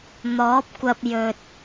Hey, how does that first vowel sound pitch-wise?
rising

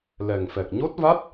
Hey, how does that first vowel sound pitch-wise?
low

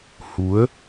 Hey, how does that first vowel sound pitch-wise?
rising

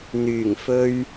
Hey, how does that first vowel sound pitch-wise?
low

